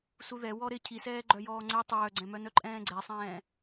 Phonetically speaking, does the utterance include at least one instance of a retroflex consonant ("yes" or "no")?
no